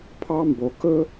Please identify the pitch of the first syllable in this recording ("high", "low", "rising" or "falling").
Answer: high